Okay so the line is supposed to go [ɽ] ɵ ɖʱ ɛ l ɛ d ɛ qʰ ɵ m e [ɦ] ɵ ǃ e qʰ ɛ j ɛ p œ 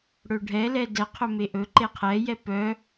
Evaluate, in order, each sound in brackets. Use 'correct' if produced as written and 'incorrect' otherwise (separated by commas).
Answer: correct, incorrect